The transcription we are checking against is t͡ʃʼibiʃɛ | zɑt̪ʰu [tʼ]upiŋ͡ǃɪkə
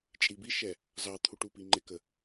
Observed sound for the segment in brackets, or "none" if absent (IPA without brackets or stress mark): ʈ